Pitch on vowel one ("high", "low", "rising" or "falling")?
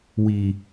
low